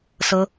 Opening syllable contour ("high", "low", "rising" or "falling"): high